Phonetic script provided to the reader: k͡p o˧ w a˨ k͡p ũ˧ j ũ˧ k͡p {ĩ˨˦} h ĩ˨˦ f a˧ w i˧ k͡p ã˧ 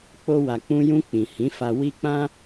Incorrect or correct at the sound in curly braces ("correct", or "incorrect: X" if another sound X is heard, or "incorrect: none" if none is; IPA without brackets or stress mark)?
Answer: incorrect: ĩ˨